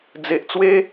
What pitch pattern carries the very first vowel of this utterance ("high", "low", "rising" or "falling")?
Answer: low